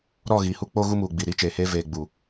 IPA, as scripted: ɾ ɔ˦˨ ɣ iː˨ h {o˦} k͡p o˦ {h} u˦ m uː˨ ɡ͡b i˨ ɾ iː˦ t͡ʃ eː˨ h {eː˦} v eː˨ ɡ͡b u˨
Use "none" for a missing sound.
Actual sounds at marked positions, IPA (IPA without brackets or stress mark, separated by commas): u˦, ɣ, eː˦